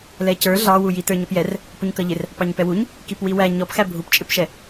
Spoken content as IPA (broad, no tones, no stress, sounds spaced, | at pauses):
l ɛ c ə˞ ɮ ɑ w u j i t ə˞ ɲ ʌ p j ɛ r | p ʊ ɲ k ʌ ʎ ɪ r | p ɑ ɲ p ɛ w u ɲ | k i p w i w æ ɲ ɔ p x æ bʱ u p t͡ʃʼ ɪ p ʃ ɛ